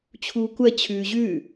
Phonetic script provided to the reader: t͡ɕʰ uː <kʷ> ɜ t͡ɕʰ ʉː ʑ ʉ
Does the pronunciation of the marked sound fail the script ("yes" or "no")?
no